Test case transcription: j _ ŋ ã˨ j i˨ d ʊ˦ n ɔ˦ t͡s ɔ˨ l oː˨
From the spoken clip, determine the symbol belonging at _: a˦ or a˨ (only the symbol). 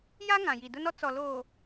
a˦